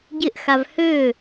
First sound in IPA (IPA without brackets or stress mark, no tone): ɟ